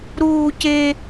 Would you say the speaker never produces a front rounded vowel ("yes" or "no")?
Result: yes